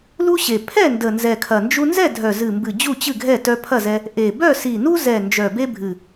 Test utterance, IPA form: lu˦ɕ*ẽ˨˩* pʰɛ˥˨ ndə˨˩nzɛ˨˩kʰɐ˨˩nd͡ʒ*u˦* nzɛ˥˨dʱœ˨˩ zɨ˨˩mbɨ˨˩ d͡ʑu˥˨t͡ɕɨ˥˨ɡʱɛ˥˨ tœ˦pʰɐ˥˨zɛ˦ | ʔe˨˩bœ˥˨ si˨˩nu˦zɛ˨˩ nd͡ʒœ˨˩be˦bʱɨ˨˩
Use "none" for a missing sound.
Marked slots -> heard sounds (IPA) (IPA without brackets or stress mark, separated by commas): e˨˩, u˦